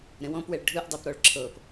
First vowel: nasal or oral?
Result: nasal